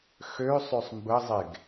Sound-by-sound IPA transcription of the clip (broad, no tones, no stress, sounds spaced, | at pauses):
x ø sˤ ø sˤ m b ə zˤ e ɡ